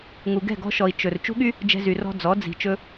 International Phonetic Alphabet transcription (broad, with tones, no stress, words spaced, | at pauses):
ŋu˨ɡɛ̤˦˨ɡɔ̤˧ʃɔ˨i̯ t͡ʃɵ˨r t͡ʃṳ˧ɠy˧ | d͡ʒɛ̤˧zy˨rɔ̤˧ d͡zɔ˨˦ d͡zi̤˨ t͡ʃɵ˧